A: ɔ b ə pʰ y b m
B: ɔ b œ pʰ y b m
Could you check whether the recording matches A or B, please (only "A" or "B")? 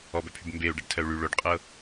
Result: B